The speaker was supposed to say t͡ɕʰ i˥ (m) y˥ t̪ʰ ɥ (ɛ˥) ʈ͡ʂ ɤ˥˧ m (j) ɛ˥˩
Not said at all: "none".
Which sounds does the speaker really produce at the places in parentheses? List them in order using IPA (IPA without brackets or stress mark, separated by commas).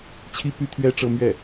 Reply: p, ɛ˥, ɥ